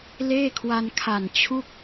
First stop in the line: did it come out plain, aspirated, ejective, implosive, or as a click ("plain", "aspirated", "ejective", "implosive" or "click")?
aspirated